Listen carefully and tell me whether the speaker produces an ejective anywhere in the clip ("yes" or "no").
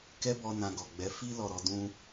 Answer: no